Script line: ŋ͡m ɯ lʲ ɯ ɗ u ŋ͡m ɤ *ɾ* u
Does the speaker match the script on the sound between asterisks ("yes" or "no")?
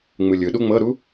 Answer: yes